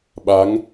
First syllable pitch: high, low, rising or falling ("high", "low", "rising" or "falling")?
rising